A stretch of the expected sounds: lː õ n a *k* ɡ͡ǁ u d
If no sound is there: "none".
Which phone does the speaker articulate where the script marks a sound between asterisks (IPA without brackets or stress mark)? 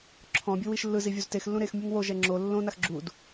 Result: x